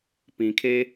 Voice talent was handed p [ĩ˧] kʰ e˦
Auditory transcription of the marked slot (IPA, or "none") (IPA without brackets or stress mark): ĩ˧